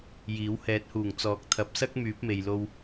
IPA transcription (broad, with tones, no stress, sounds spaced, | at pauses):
j iː˨˥ w h ɛː˨˥ t̚ h uː˨˩ ŋ t͡s ɔː˨˥ k̚ t̪ʰ ɐ˨˥ p̚ s ɐ˥ k̚ m yː˨˥ p̚ m e˨ j l o˧ w